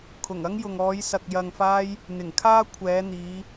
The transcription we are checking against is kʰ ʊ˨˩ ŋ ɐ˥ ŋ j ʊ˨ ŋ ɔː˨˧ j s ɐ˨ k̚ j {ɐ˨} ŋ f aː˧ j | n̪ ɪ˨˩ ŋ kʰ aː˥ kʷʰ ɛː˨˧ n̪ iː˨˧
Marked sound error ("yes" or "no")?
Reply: no